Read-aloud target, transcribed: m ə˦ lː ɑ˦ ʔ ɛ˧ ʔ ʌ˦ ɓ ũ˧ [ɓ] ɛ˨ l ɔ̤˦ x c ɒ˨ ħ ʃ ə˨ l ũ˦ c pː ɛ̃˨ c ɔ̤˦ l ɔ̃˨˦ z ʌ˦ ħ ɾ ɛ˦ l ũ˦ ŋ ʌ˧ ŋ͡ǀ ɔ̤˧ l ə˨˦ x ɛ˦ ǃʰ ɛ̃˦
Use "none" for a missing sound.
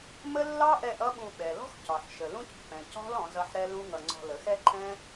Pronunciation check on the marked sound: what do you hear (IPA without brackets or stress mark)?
ɓ